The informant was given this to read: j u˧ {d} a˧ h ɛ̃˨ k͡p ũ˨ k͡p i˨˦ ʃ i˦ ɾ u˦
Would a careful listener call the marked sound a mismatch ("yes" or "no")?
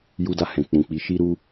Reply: no